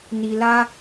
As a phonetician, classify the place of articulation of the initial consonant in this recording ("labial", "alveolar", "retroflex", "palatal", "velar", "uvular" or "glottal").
alveolar